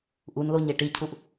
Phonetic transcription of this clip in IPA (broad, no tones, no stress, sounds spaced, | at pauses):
ʔ u n l o ɲ e ʈ i cʰ u ʔ